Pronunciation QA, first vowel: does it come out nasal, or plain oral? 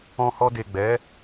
nasal